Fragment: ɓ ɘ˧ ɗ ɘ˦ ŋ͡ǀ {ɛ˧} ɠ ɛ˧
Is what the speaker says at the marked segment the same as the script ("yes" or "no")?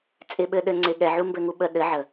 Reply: no